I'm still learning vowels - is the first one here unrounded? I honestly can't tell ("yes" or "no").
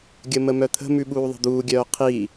yes